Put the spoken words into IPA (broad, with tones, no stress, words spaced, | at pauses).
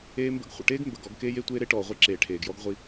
eː˦mbə̰˦ɡ χʷə̰˨ʈeː˦ɡ mbə˨ɡɔ˨˦ɡkeː˦j e˦tʷeː˦ɾe˦ʈɔː˨ ʁʷi˦ǁeː˨ʈʰeː˨ɡjɔ˦ɡ ʁʷi˦